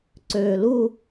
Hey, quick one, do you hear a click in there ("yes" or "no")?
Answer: yes